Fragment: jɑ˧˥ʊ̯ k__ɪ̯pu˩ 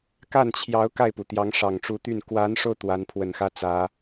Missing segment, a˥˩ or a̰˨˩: a˥˩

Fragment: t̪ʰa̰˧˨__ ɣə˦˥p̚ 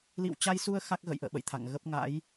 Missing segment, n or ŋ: ŋ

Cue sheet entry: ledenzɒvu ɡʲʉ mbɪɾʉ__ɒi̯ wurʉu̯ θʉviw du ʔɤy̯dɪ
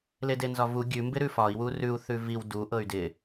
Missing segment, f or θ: f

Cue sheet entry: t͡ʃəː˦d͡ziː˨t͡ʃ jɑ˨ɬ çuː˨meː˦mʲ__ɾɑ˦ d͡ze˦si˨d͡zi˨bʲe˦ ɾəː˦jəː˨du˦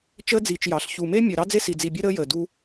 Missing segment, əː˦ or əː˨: əː˨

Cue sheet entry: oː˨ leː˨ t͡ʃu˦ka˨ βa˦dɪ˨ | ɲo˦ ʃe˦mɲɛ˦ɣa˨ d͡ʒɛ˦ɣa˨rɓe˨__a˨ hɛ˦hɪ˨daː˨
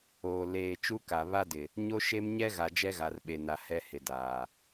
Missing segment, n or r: n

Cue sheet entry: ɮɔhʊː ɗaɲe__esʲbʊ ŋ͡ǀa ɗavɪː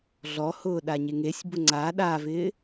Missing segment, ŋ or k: ŋ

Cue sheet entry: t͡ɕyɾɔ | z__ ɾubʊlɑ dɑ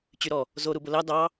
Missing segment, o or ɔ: o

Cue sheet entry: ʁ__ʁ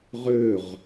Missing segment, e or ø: ø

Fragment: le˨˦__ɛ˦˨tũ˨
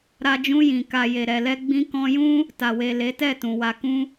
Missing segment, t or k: t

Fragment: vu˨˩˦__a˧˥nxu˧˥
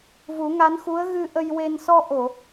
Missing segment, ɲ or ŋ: ŋ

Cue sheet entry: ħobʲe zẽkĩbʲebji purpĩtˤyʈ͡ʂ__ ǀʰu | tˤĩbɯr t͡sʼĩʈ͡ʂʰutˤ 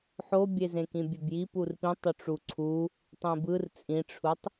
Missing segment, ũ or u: u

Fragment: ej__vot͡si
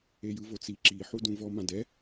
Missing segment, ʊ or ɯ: ɯ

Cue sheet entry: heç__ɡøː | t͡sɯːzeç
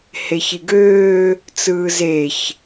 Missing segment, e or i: i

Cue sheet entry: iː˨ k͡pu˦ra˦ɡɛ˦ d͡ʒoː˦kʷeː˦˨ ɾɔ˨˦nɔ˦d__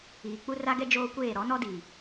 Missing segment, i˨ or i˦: i˨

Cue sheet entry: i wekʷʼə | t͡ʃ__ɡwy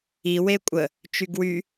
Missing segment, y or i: y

